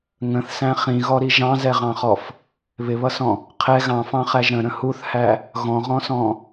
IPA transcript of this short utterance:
ŋ ə̃ θ s æ̃ χ ĩ ɣ ɔ ɾ i ʒ ɑ̃ z ɛ ʁ ɑ̃ χ ɔ f | β ɪ β ʌ s ɔ̃ | qʰ ɛ ɣ ɑ̃ f ɑ̃ χ æ ʒ ɾ ə̃ ɾ ə̃ h u θ h æ | ɣ ɔ̃ ʁ ɔ̃ s ɔ̃

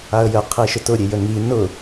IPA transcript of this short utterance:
a ə̯ j ə qʰ i ʃ ʊ t ʊ ɾʲ e j ə ŋ i n ʊ

